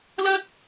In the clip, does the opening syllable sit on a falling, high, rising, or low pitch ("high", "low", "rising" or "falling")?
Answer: high